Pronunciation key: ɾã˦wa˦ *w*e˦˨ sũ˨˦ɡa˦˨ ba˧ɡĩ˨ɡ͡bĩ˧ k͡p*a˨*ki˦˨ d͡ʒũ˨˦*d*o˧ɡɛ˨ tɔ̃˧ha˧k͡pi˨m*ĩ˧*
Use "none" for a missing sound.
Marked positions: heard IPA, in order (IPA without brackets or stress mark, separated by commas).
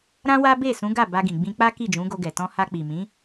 b, a˦, ɡ, ĩ˨˦